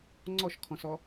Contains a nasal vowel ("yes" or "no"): yes